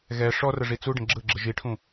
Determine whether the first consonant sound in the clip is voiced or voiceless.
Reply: voiced